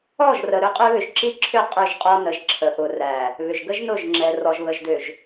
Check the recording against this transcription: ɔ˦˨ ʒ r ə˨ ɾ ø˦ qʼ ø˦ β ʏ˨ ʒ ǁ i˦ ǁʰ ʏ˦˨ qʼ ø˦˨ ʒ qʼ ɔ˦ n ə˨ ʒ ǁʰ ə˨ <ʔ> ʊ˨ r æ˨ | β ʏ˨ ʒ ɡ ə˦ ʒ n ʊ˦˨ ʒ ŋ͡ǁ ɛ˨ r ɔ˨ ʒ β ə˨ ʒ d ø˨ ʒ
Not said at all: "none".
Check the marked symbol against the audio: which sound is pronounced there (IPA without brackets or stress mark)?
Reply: ʔ